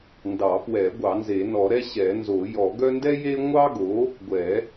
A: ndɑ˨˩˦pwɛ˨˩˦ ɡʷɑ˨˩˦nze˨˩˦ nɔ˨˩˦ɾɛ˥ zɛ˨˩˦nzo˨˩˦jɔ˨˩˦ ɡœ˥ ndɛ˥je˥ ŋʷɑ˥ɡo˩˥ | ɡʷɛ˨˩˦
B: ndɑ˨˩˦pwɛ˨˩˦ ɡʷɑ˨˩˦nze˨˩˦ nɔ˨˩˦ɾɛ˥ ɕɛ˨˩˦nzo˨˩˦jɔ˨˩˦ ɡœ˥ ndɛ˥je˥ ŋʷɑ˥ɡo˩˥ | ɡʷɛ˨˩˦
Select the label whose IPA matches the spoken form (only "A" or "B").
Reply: B